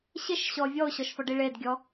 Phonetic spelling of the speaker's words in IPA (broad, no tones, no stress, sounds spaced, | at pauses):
ɕ ɪ ʃ ɕ ɔ vʲ ɔ ʊ̯ ɕ ɔ ʃ f ɔ ɖ i ɭ e d ɡʲ ɔ